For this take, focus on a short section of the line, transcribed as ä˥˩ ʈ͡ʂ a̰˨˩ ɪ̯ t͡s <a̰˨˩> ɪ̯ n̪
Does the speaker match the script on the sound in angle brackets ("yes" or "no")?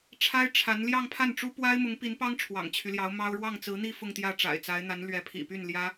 no